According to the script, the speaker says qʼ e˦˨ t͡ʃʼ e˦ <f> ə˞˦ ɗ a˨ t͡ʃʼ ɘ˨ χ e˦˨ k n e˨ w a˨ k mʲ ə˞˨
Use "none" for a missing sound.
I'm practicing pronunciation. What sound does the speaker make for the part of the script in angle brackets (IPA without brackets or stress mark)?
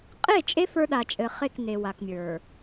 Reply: f